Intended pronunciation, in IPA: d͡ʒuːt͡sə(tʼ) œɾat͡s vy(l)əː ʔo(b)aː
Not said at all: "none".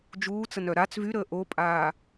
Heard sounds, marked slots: n, ɾ, pʼ

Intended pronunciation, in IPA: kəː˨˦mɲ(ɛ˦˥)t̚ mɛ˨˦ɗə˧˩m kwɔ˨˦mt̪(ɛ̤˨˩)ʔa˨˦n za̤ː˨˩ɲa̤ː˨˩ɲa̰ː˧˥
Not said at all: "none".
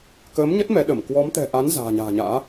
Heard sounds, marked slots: ə˦˥, ɛ̤˨˩

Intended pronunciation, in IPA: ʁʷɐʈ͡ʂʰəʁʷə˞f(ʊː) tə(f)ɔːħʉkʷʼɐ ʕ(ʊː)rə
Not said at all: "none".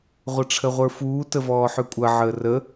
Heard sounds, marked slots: uː, v, əː

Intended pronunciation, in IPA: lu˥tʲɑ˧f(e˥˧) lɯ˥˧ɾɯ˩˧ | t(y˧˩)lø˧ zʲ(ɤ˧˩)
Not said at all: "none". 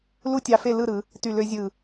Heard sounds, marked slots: e˥˧, y˧˩, ɯ˧˩

